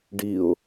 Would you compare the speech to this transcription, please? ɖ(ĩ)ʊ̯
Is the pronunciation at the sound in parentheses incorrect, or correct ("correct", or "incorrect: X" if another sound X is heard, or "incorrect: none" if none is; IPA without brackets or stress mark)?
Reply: incorrect: i